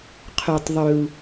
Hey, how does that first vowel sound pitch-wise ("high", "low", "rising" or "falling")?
low